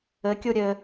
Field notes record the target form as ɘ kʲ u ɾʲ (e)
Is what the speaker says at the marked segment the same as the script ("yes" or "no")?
no